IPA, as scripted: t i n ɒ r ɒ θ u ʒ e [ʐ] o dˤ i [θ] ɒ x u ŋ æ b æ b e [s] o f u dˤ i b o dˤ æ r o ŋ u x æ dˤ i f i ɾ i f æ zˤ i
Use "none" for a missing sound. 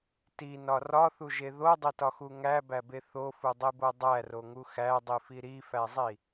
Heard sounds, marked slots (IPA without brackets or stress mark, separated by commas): ð, t, θ